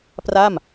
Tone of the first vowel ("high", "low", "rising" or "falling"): falling